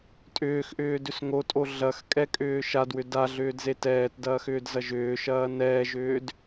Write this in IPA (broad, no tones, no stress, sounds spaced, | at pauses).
tʼ ʏː x ʔ ʏː d ʏ s ŋ o tʼ o ɮ ɐ x kʼ ɛ kʼ ʏː ʃ a d w ʏ d a ɮ ʏː d z e t ɛː t d ɐː x ʏː d z ɐ ʒ ʏː ʃ ɐː n ɛː ʒ ʏː d